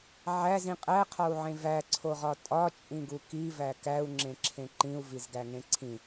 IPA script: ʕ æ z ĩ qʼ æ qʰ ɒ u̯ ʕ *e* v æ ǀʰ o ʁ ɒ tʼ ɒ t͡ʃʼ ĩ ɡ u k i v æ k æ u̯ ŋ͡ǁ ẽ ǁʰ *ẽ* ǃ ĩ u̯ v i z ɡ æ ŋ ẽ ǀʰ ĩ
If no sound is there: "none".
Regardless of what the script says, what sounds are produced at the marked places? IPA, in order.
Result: ẽ, ẽ

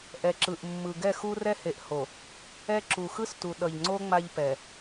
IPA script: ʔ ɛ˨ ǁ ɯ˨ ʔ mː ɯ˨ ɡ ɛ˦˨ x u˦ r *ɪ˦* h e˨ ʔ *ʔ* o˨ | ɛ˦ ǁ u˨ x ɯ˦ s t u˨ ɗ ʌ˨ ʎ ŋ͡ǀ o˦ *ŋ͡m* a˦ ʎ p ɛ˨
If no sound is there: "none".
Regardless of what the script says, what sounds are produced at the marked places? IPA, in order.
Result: ɛ˦, h, ŋ͡m

